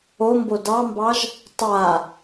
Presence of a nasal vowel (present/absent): absent